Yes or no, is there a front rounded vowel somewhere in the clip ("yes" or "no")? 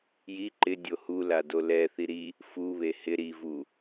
no